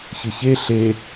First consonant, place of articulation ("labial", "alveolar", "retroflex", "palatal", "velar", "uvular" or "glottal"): palatal